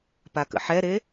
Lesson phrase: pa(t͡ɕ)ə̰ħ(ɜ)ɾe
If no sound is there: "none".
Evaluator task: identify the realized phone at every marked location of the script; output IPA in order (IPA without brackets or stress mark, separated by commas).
k, ɛ